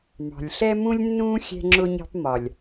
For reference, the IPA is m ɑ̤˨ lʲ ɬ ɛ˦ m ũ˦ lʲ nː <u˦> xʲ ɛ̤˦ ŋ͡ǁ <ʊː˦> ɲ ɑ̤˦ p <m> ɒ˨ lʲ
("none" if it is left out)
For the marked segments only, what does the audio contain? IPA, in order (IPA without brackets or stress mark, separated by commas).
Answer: ũ˦, ʊ˦, m